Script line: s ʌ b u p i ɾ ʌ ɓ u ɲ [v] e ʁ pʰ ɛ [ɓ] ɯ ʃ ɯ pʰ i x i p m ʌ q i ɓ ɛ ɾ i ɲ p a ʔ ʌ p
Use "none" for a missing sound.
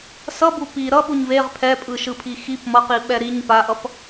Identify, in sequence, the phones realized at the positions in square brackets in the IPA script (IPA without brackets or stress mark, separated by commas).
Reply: v, pʼ